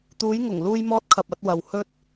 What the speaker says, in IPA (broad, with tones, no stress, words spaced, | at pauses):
t̪uː˨˧jŋʊ˨˩ŋ luː˧jmɔː˧t̚kʰɐ˨p̚ ɐ˧t̚wɐ˨w hɵ˧t̚